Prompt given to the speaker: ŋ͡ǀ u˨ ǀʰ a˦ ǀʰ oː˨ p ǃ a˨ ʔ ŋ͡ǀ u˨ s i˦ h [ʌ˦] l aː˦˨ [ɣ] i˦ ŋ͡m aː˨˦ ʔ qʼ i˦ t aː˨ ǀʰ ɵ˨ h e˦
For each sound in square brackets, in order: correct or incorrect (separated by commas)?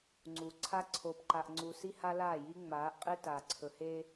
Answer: incorrect, incorrect